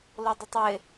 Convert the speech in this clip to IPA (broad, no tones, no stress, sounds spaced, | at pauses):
l o dˤ ɵ tˤ w ɪ